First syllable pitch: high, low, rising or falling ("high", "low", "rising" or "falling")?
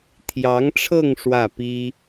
rising